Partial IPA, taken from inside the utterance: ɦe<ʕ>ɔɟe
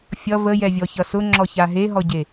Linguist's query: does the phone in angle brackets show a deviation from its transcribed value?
yes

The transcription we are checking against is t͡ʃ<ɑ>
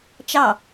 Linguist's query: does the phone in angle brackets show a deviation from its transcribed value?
no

